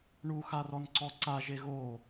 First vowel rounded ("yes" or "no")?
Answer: yes